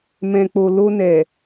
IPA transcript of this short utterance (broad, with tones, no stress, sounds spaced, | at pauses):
m ɛ̃˨ k͡p o˨ l o˧ n ɛ˨